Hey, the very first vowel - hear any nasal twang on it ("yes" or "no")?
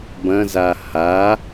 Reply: yes